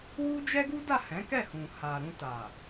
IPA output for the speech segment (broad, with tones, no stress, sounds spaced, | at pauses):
w u˦ d͡ʒ ɛ˦ ɡ u˦ d a˦˨ h ɛ̃˨˦ k ɛ˦˨ h ũ˨ h a˨ ɾ ũ˧ t a˨